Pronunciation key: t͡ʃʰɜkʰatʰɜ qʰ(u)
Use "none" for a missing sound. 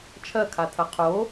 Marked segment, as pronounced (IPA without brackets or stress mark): o